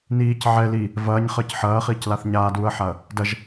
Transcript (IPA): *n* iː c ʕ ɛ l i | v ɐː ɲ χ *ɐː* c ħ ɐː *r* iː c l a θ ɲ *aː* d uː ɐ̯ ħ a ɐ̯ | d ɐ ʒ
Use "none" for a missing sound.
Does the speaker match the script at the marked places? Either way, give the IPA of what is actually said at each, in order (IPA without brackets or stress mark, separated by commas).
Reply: n, əː, χ, aː